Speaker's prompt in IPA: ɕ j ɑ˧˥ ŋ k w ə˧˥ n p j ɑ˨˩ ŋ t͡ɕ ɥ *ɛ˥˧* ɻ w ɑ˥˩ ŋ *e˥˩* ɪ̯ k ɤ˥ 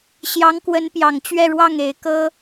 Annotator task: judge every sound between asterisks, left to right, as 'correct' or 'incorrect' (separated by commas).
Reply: correct, incorrect